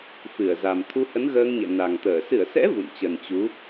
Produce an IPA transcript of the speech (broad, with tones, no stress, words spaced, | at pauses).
fɨ˧˩ə̯za˨˩m t̪ʰu˧hə˨˦nɣəː˧ŋɲɛ̰˧˨ na˨˩ŋt̪əː˧˩ sɨ˧˩ə̯sɛ̰˧˥ vṵ˧˨nt͡ɕə˨˩n t͡ɕu˨˦